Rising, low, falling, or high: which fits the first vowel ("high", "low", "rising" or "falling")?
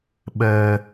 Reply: high